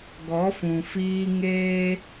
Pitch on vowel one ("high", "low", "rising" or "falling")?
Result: rising